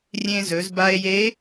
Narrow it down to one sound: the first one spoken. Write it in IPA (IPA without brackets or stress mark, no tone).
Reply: rʲ